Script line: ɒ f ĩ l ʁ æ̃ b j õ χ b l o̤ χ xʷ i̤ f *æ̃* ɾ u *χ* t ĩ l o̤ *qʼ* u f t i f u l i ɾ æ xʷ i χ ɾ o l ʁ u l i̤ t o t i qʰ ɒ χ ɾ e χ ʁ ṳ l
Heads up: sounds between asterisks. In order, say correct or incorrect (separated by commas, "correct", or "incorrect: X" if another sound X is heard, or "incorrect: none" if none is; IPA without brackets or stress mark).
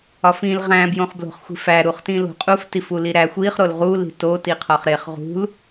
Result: incorrect: æ, correct, correct